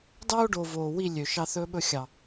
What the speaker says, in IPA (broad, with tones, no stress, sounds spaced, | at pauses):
d ɑ˦ o̯ ɖ o˨ v oː˨ w i˦˨ lʲ ø˨ ʃ ɑ˧ θ ɵː˧ ɓ ɵ˧ xʲ ɑ˨